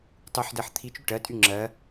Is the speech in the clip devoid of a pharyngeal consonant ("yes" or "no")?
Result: no